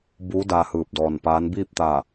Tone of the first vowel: rising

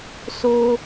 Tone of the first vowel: high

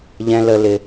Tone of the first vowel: high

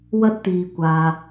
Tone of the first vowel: high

